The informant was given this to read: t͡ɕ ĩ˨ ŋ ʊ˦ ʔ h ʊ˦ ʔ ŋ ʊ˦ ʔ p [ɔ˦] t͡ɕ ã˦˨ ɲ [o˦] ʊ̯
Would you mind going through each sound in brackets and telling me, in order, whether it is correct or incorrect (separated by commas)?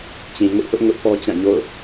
correct, incorrect